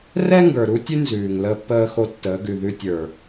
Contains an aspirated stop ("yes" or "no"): no